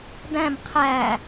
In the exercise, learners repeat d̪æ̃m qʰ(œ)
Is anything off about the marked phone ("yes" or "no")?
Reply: yes